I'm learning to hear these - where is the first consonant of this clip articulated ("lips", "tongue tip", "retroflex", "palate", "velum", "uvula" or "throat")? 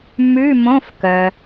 lips